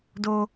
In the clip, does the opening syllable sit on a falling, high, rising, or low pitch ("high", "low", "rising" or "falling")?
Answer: high